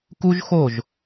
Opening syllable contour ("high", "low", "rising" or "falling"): high